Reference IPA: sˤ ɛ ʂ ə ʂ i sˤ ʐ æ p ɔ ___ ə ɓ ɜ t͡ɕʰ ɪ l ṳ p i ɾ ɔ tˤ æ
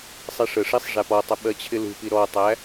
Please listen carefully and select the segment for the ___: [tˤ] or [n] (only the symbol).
tˤ